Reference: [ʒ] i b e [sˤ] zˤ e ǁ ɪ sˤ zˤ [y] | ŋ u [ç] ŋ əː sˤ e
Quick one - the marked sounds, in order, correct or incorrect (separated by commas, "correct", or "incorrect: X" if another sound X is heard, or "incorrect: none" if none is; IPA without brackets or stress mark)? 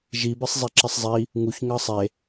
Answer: correct, correct, incorrect: i, correct